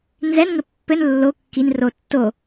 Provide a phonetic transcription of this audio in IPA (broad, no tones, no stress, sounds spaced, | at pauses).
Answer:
n z ɛ n ŋ ɘ pː ɘ n lː o kː i n r o tː o